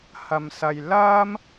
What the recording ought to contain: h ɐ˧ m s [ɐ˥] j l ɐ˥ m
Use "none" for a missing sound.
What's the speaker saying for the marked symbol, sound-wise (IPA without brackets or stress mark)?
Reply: ɐ˧